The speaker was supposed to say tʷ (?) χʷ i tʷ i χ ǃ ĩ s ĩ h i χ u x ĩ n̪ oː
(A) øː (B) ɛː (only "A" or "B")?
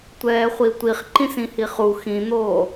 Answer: B